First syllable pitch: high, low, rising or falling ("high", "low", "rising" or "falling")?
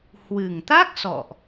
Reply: low